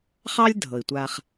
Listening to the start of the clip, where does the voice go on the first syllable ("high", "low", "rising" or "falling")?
high